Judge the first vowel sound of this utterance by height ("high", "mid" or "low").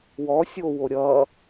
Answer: mid